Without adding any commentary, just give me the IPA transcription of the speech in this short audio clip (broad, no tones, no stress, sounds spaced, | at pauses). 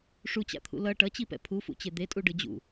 ʂ u t͡ɕ a̰ t̪ʰ ṵ l ʌ ʈ ʌ t͡ɕ i p ɛ̰ pʰ u f ṵ t͡ɕ e d̪ e tʼ u ɖ ɯ d͡ʑ ṵ